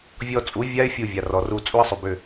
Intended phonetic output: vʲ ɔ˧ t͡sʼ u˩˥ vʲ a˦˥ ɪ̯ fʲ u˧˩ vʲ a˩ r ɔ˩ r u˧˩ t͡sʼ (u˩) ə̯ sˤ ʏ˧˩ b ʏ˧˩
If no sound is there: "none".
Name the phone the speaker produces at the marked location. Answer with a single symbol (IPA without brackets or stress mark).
u˦˥